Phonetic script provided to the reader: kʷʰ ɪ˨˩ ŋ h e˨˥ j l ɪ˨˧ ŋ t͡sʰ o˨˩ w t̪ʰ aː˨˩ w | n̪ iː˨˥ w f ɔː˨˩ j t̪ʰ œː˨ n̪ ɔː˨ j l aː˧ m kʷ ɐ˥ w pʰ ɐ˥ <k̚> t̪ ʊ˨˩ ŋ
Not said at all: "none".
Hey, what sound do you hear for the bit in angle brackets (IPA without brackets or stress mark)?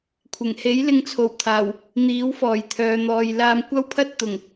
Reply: t̚